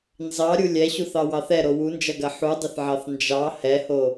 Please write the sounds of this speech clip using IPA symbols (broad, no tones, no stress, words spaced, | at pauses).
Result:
nzɑɾʲu lʲɛɕuθɑwɑθ ɛɾo wund͡ʒɐɡɐ ħudˤɪθʕɑθ nd͡ʒɑ hɛho